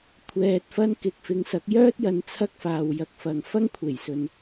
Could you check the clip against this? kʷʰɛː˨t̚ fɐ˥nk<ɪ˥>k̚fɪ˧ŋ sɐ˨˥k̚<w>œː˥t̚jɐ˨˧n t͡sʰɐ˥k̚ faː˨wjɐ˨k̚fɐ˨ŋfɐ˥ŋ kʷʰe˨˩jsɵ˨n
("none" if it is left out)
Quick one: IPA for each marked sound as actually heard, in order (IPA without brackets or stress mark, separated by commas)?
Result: ɪ˧, j